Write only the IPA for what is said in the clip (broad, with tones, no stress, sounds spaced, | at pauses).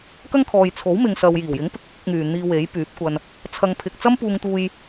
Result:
k ɐ˥ ŋ kʰ ɔː˨ j t͡sʰ o˨˥ w m ɪ˨ ŋ s ɐ˨ w j iː˨˩ w j ɪ˨˥ ŋ p ɪ˨ k̚ ɪ˨˥ k̚ ɪ˨˥ k̚ ŋ yː˨ n̪ iː˧ w e˨˥ j p yː˨˥ p̚ kʷ ɐ˧ n | t͡sʰ ɐ˨ ŋ pʰ ɪ˨ k̚ t͡s ɐ˥ m p uː˧ ŋ t̪ uː˧ j